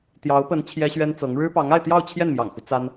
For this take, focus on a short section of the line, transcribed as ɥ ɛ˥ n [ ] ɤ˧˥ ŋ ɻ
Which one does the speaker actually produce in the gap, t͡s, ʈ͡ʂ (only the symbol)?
t͡s